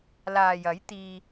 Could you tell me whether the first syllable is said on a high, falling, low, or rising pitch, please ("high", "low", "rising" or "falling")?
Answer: low